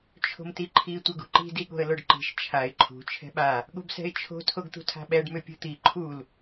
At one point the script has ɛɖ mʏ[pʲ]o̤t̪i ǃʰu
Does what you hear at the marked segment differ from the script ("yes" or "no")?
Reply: no